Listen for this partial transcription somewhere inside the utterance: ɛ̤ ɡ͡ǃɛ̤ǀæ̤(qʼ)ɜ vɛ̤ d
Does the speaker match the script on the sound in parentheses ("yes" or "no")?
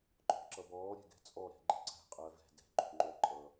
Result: yes